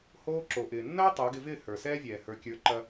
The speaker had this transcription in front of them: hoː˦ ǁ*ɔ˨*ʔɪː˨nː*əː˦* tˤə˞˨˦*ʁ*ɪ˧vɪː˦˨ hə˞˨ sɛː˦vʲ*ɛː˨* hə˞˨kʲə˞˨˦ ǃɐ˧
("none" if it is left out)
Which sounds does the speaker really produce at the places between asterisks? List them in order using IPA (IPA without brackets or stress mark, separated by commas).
o˨, ɐː˦, ɡ, ɛː˨